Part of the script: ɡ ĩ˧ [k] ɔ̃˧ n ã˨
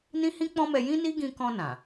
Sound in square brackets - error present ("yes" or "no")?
no